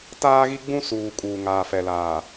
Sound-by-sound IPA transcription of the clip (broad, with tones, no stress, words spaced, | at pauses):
taː˦ɣi˦ɡ͡bũ˦suː˨ kʼuː˨ŋaː˨fɛ˨laː˨